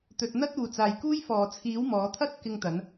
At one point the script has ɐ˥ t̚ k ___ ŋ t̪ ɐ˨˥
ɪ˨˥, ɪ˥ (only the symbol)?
ɪ˥